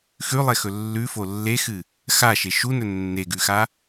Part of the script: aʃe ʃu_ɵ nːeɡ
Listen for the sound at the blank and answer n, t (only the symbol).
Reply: n